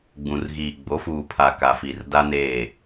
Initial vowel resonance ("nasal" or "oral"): nasal